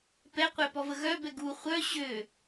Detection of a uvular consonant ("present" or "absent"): present